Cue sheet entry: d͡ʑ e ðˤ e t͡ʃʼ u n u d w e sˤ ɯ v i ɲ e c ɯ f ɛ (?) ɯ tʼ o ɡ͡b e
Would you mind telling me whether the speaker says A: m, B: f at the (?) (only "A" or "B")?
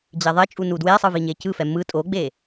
A